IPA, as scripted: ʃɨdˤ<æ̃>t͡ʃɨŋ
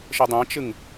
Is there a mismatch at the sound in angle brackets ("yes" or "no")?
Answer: no